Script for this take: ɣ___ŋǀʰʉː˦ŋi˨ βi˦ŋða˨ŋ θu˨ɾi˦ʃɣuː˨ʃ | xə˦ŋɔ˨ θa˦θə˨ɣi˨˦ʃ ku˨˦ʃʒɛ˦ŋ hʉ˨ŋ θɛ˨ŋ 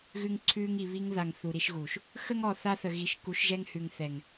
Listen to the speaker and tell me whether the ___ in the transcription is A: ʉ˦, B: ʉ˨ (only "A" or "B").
A